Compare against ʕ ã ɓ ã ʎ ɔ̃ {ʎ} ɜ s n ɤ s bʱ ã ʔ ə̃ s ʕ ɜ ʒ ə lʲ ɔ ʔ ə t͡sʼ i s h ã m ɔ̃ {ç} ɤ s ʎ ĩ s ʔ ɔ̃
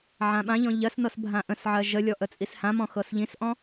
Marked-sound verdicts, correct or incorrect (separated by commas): correct, incorrect